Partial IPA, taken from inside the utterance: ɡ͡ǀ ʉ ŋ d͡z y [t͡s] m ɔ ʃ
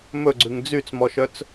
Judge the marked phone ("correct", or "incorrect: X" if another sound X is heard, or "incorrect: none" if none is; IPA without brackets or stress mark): correct